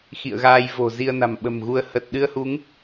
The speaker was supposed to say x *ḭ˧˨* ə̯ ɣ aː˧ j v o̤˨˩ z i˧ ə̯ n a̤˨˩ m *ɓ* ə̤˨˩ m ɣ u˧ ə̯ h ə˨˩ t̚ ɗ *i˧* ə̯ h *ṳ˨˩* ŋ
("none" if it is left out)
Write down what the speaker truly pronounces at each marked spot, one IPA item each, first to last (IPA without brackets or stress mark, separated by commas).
ḭ˧˨, ɓ, ɨ˧, u˨˦